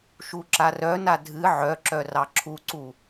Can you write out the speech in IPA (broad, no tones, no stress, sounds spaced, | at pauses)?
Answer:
ʃ u ǁ a r œ n a dʱ ɨ ʕ œ ǁ œ r ɑ ǁʰ u ǀ u